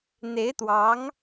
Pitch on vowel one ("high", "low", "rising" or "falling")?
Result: rising